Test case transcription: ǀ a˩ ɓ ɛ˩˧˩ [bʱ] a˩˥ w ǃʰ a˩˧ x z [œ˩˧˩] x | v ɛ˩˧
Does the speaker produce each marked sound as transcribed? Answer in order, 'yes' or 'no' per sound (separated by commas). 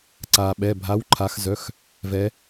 yes, yes